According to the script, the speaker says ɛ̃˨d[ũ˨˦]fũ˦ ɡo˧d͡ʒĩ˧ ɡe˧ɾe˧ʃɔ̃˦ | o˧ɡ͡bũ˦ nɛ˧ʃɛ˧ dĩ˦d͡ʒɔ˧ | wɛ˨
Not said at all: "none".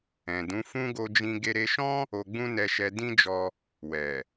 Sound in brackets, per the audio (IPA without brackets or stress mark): ũ˨˦